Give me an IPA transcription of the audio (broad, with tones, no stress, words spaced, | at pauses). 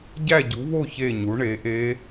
ɟæ˥˨ɟu˩˥βo˥˨ çe˥˨ɲu˩˥ɳe˩˥ʔe˦˥